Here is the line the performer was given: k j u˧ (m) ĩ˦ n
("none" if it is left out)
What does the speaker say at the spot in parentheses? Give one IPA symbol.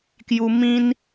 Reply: m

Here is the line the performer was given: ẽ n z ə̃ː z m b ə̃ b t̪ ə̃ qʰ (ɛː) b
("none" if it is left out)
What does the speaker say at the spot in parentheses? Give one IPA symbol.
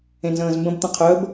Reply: əː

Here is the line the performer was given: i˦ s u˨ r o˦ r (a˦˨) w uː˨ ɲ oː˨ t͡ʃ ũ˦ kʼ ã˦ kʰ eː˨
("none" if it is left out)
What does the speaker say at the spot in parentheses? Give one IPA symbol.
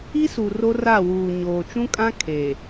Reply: a˦˨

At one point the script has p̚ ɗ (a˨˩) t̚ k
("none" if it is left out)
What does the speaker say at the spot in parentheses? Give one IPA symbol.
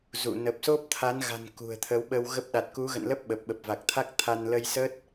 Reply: a˨˩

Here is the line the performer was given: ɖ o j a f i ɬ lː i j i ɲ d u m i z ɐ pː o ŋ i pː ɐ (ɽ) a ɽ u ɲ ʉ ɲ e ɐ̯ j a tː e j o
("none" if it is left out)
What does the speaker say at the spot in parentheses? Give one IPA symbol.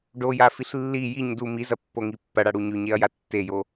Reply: ɽ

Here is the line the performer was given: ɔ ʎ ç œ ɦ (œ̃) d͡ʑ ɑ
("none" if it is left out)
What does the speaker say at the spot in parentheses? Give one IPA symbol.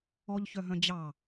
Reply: œ̃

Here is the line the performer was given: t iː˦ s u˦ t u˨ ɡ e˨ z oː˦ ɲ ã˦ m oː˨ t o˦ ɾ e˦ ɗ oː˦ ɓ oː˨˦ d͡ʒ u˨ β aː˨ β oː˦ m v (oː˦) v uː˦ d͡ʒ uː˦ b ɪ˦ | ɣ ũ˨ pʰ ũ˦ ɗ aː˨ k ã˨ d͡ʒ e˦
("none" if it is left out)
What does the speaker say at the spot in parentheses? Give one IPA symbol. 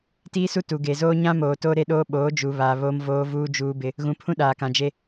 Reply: oː˦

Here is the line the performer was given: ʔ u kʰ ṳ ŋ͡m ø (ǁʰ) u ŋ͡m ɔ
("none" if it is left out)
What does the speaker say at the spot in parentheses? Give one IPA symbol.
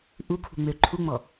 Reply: ǃʰ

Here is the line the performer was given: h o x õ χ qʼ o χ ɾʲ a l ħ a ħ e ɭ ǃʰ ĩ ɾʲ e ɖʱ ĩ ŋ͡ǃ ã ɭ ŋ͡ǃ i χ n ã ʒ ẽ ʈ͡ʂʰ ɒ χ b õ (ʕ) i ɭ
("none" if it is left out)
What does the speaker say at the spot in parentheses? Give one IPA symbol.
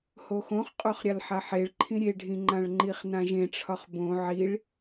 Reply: ʕ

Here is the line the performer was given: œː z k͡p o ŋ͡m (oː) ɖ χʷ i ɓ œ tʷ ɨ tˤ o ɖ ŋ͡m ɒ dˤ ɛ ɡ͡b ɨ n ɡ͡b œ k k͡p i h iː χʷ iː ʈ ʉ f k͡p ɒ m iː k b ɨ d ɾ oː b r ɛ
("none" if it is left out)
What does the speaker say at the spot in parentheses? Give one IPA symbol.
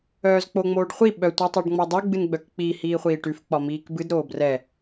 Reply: oː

